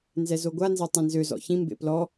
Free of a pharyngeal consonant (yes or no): yes